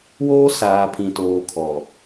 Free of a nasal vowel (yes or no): no